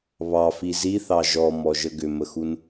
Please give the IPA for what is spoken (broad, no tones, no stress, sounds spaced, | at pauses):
β ɑ f i z i θ ɑ ʒ ɔ m ɔ ʒ ə ɡ ʏ m ə x u n